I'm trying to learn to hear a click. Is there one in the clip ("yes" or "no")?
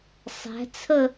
no